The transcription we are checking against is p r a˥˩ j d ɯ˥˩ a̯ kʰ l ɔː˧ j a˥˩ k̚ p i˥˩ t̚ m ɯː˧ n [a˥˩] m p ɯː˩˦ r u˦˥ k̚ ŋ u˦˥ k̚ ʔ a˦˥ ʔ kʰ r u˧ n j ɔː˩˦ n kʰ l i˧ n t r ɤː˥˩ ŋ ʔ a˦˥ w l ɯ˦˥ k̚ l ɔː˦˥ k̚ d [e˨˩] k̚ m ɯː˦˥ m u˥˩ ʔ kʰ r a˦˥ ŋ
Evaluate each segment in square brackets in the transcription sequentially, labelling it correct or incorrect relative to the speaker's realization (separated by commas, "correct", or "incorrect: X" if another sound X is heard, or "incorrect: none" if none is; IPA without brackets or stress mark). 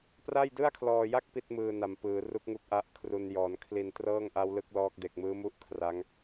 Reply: incorrect: a˨˩, correct